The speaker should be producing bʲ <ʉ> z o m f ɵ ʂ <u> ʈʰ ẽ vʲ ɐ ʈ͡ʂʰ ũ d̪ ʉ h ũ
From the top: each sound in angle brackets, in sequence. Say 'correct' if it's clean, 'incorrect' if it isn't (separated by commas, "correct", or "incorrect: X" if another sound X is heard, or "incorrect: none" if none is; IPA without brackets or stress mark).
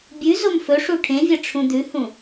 correct, correct